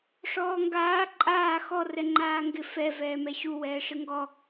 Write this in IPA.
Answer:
ʂ ɔː ŋ ɡ aː ǃʼ aː x ɔ r ɛ ŋ͡ǃ aː ŋ ɡ ɪ f ɛ v ɛː m ɛ ɕ u w ɛː ʂ ɪ ŋ ɡ ɔ

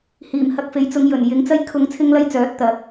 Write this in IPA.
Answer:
h iː˨˩ m h ɐ˧ k̚ f e˨˧ j t͡s ʊ˨˧ ŋ j ɵ˨˩ n j ɪ˨˧ ŋ t͡s ɐ˥ j kʰ ʊ˧ ŋ t͡sʰ ɪ˥ ŋ l ɐ˥ j t͡s œː˨˥ t̚ t̪ ɐ˨˥ k̚

